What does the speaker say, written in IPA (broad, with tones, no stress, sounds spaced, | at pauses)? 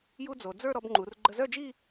j u˥ d͡z o˩˧ d͡z ə˞˥˧ ɾ ɔ˧ b ŋ͡ǃ u˩˧ r ɡ͡ǃ ə˧ z œ˥˧ d͡ʒ i˥˧